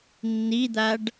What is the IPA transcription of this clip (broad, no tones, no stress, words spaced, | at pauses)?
nːid̪aɖ